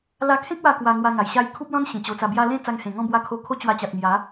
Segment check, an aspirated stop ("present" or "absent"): present